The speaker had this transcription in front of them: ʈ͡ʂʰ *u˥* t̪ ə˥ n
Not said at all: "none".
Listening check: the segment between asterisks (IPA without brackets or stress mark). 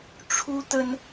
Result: u˥